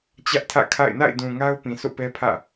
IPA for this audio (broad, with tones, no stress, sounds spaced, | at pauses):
t͡ɕ ä˦ ʔ tʰ ä̰˦˨ kʰ a̰˦˨ ɪ̯ n a̰˦˨ ɪ̯ d ũ˨ ŋ a˦ ʊ̯ p ĩ˨ sʰ o̰˦˨ p ɛ˦ pʰ ä̰˦˨